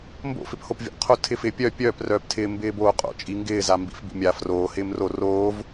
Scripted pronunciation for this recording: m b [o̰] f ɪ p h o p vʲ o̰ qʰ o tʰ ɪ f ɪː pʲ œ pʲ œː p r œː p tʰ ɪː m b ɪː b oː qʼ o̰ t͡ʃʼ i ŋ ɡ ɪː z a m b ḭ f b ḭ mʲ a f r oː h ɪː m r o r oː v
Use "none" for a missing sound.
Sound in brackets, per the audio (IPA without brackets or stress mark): o̰